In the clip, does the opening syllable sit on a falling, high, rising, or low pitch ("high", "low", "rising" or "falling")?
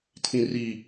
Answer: low